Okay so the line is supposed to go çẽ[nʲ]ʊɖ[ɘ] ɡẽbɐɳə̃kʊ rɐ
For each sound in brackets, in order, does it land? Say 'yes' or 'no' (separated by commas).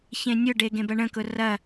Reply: yes, no